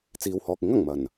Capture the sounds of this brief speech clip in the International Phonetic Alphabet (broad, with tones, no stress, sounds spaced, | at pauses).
t͡s iː˨ w h ɔː˨ k̚ ɪ˨˥ ŋ ɐ˨˩ ŋ m ɐ˨˩ n